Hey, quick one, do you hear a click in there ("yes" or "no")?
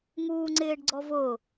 yes